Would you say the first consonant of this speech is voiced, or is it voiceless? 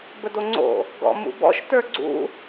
voiced